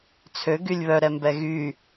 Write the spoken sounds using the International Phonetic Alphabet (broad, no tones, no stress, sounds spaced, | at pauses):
t͡sʰ ø ɡ y lʲ β œ ɾ ɛ m b ɛ ɣ y